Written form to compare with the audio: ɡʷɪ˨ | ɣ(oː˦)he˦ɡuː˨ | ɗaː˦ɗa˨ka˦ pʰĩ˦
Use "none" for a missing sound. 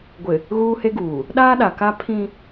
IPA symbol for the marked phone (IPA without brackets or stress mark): uː˦